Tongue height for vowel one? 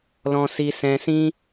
mid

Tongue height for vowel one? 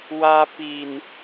low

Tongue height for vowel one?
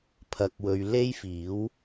low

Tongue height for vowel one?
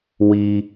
high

